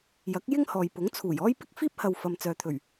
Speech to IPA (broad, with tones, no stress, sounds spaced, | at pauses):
j ɐ˨˥ k̚ j ɪ˥ ŋ h ɔː˨ j p ʊ˨˥ ŋ t͡sʰ uː˨˩ j ɔː˥ j p ɪ˥ k̚ f iː˥ p̚ h ɐ˨ w f ɐ˨ m t͡s œː˨ t̪ʰ ɵ˨˩ ɥ